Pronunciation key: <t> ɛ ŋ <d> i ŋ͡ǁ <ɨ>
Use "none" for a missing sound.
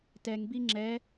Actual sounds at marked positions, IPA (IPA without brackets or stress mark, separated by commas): t, b, ɛ